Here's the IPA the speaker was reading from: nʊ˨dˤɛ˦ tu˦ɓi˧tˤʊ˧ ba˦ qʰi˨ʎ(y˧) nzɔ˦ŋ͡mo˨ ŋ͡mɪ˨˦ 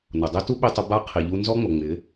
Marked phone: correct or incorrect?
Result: incorrect